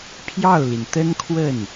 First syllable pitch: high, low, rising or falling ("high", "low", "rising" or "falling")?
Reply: falling